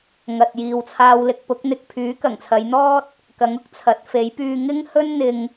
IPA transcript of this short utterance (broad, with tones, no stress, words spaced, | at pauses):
ŋɐ˨t̚jiː˨wt͡sʰaː˧wlɪ˨k̚ pʊ˨˥k̚n̪ɪ˨k̚ pʰyː˨˥kɐ˨˩ŋt͡sʰɐ˨˧jn̪ɔː˥t̚ | kɐ˨˥ŋʊ˥k̚t͡sʰɐ˨˥t̚ fe˨˥j pyː˧ ŋɪ˥ŋ hɵ˥nn̪ɪ˧ŋ